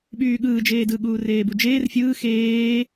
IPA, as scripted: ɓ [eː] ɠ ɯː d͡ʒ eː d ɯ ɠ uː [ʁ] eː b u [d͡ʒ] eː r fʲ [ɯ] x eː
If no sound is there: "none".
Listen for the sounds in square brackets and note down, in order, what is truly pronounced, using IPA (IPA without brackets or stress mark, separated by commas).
yː, r, d͡ʒ, ɯː